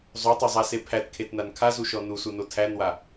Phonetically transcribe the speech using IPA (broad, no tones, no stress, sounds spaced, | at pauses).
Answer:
zˤ o tˤ o zˤ a s e pʰ æ t kʰ e t n a n kʰ a z u ʃ ɔ n u s u n o tʰ æ n w a